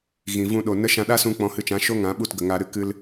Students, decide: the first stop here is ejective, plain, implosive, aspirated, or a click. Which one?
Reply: implosive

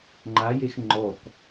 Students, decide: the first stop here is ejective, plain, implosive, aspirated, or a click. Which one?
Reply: click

